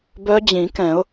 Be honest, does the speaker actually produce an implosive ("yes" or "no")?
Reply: no